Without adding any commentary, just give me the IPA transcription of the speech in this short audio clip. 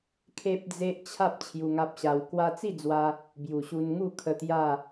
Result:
kʰe˦p̚d͡ze˦ʔ t͡ɕʰa˦p̚ t͡ɕʰju˧ŋa˦p̚ɕa˧w kwa˧t͡si˥˧d͡zwa˧ | bju˨˩ɕu˧n ŋu˥˧kʰə˧ t̪ja˥˧

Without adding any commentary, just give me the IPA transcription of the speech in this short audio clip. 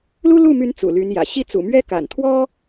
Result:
lu˥lu˥˩my˧˥n t͡sṵ˨˩ly˧˥njä̰˨˩ ɕi˥˩ t͡sṵ˨˩mɥɛ˥ ka̰˨˩nt̪ʰwɔ˥

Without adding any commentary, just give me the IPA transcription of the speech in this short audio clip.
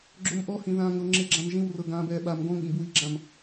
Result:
ɡ͡ǁomʔɔhĩ ðãːŋɤ ŋ͡ǁeɡ͡ǁãmʒĩwrɤ ɡãːbɛːɓam ɡɔ̃ŋɠĩb wiɡ͡ǁãm

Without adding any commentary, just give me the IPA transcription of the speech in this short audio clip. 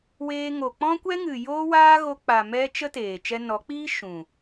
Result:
weː˧ŋo˨ k͡pɔ̃˦kʷɛ˦ŋɨ˨ joː˦waː˦ ɣo˧k͡pa˨ mɛ˦t͡ʃə˦teː˨ t͡ʃɛ˧nɔ˨˦k͡piː˦ ʃũ˨

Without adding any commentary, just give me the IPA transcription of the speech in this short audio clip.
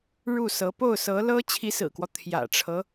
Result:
ɻu˥˩sɤ˧˥ po˥˩ʊ̯sɤ˧˥lɤ˥ t͡ɕʰi˧˥sɹ̩˨˩kwɔ˦ t̪ʰjä̰˨˩ʈ͡ʂʰɤ˦

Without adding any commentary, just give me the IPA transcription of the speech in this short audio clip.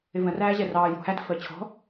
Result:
ɪvə̃ ræːʑɛrɑː jṳ hæd fəːt͡ɕʰɔ̤

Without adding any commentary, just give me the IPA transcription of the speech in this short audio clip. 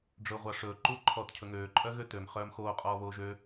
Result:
ɖ͡ʐɵːʁʷɑʂɵː ǃuːǃʰɔːtcʰɵŋøː ǃʼœɣøtøm χœːmxoː qʼɔːβoːʒø

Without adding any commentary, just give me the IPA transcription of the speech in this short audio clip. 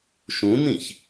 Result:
ʃũnĩç

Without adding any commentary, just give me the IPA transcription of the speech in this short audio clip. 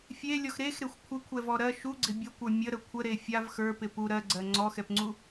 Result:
fʲelʲɔx ɾexɾexʷ kʷʰɪkʷʰɛvɔ ɾɜ ʃuɡ͡ǀɪ bʲɐkʷə˞ mʲəɾə kʷʰəɾe fʲav xə˞pɪ pu ɾɜɡ͡ǀɜ ŋ͡ǀɔxɛpŋ͡ǀu

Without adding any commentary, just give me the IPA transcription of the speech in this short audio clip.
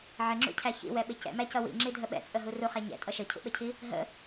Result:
ʕɪŋ͡ǁṵcʰæ çḭwɛɓɪ cɛ̰mæcʌ wḭŋ͡ǁidʱə ɓɛ̰t͡sʼəɦu ruχæ ɲɛ̰tʼʌ ʃəcʰṵɓəcʰi | ɦə̰

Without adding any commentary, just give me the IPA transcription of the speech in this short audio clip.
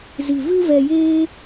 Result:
zi˨ vɨ˦vɛ˧jeː˦

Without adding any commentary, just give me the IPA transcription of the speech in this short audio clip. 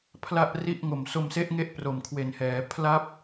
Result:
pʰla˥˩ʔri˥˩ʔ ŋo˨˩mso˧mse˦˥ʔŋe˦˥ʔ pro˨˩mkʰwe˨˩nhɛː˩˦ pʰla˥˩p̚

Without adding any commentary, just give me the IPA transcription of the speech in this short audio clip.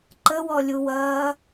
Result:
ǃəwɔlʲuwɐː

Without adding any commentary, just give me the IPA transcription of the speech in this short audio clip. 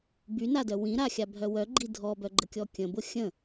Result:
bynadœ wĩɾaxʲabʱœ wœɡ͡ǃi dʱɔbœɡ͡ǃəkʲɔ kʲə̃bʊ xʲə̃

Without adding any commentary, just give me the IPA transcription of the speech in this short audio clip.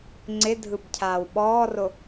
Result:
ŋ͡ǀɪdʱɯbcʰaːw ɓɔːro

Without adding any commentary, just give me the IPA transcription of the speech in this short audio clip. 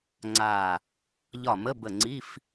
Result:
ŋ͡ǀa˧˩ | ʎɒ˧˩mə˧˥˧bə˧˩ŋ͡ǀi˧˥˧f

